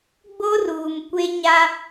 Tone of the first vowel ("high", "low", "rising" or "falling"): high